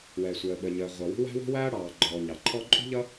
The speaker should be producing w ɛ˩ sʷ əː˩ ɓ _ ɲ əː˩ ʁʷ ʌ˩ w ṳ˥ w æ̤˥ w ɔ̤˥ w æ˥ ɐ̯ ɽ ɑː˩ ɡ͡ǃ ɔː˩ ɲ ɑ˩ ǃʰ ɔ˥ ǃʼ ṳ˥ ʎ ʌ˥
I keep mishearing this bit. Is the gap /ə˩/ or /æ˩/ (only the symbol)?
ə˩